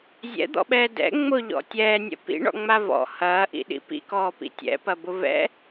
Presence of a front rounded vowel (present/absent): absent